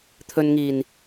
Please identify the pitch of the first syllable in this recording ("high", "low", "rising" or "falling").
low